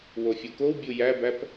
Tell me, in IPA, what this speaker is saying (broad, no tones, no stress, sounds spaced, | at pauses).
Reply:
w o fʲ o k o w bʲ u j æ b æ p